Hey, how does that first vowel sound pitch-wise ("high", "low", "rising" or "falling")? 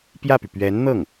falling